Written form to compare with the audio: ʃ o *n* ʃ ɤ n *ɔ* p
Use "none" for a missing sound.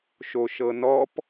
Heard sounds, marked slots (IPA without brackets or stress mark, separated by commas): none, ɔ